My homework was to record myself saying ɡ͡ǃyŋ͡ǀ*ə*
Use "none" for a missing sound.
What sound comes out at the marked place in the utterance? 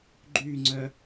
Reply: œ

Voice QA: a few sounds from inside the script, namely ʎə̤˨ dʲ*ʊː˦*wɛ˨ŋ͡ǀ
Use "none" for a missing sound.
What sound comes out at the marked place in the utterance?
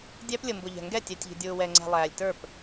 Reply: ʊː˨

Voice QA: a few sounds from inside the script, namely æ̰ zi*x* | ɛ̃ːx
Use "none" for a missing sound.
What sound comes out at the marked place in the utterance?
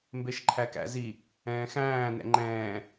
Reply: none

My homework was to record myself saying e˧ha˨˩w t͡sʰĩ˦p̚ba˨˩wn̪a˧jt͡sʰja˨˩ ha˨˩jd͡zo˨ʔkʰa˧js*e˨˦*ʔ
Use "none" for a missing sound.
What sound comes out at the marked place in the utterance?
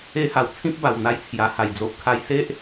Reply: e˦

